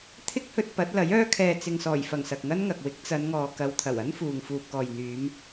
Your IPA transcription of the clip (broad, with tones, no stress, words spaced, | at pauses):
t̪ʰɪ˥k̚hɵ˧t̚ pɐ˨˥t̚lɐ˨˥jœː˥ kʰɛː˨t͡sɪ˨ŋsɔː˨˩jfɐ˨˩ŋ sɐ˨k̚ŋɐ˥nŋɐ˨k̚wɪ˨˥k̚ t͡sɐ˨˧nŋɔː˨kɐ˨˧w t̪ʰɐ˨˩wɐ˥nfuː˨ŋ fuː˨p̚kɔː˨jn̪yː˨˧m